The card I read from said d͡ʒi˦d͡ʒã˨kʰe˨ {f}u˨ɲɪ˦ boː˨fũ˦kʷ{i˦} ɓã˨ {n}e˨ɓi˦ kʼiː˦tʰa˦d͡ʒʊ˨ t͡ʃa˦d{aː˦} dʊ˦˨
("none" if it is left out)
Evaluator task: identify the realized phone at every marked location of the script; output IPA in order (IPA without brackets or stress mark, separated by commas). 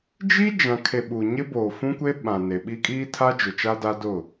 ɓ, e˦, n, a˦